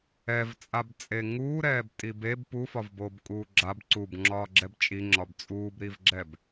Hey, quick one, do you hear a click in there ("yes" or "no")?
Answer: yes